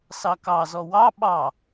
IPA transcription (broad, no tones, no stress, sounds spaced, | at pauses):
s ɑ k ɑ z ɔ w ɑ ɓ ɑ